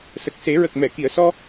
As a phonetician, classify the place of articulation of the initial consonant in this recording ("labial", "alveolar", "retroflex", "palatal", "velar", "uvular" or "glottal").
alveolar